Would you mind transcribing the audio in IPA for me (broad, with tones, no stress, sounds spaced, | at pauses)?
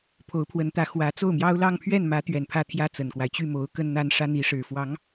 pʰ o˧˥ ʊ̯ pʰ w ə˧˥ n t̪ ä˧˥ x w ä˧˥ t͡s o˥˩ ʊ̯ m j ɑ˥ ʊ̯ l ɑ˥˧ ŋ pʰ ɥ ɛ˥˩ n m ä˧˥ t̪ ɥ ɛ˨˩ n pʰ ä˥˩ t̪ʰ j ä˥ t͡s ə˨˩ n k w a˦ ɪ̯ t͡ɕ y˥˩ m o˧˥ ʊ̯ k ə˥ n n̪ a˥ n ʂ ä˥ n̪ i˧˥ ʂ ɻ̩˨˩ f w ɑ˧˥ ŋ